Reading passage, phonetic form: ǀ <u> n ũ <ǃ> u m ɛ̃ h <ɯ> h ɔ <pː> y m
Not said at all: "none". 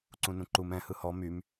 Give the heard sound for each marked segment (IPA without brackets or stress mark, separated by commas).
ũ, ǃ, ɯ, m